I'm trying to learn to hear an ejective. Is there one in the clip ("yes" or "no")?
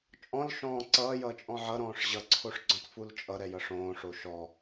yes